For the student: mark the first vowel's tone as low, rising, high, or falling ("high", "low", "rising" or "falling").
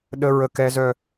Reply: high